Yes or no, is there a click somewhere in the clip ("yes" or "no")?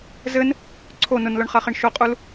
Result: yes